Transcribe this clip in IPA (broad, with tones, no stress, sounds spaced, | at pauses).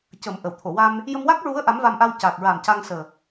c ə˨˩˦ m ʔ ə˨˩˨ w t̪ʰ o˨˩˨ w a˧ m | j ə˧ m w a˦˥ k̚ ɹ u˧˥ ə̯ ʔ a˧˥ m v a˧ m ʔ a˧ w c a˨˩ k̚ ɹ a˨˩ m c a˧ ŋ s əː˨˩